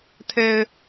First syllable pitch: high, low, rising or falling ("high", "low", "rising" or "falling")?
low